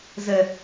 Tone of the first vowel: low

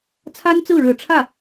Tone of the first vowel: high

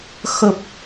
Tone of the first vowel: low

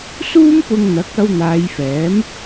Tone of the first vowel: high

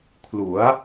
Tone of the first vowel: rising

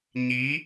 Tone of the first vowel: rising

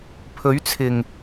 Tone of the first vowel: rising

